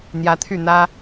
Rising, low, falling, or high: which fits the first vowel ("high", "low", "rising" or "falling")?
rising